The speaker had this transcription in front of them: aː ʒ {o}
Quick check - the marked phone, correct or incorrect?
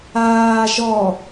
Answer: incorrect